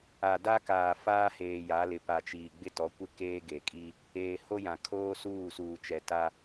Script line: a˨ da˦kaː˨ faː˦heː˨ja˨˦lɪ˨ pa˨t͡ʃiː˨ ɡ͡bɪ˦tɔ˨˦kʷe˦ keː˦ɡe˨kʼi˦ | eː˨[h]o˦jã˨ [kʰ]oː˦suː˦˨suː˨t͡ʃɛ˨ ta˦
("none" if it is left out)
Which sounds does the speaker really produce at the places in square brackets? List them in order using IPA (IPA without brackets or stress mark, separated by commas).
h, kʰ